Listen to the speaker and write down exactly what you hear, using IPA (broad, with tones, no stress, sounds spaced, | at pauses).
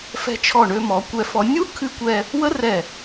f ɛ̤˧ t͡ʃʰ ɔ˧˩ ɳ ø˧ m ɔ˩˧ kʷ ɛ˧ f ɔ˧ nʲ u˥ kʰ ɨ˧ kʷ ɛ˧ | w ə˥ r ɛ˧˩